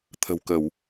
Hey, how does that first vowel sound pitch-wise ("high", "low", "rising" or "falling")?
low